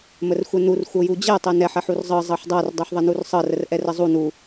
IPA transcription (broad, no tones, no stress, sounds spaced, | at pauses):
m ə r xʷ ɛ n u r xʷ ɤ j u d͡ʑ ɛ tˤ ɛ n ɛ ħ ɛ ħ u r zˤ ɤ zˤ ɤ ħ dˤ ɤ r dˤ u ħ ðˤ ə n u r sˤ ɤ r ə r ʔ ɛ r ə zˤ u n u